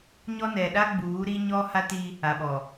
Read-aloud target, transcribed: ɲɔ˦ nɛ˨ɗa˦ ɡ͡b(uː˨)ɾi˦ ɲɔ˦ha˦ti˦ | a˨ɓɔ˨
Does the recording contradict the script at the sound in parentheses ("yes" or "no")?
yes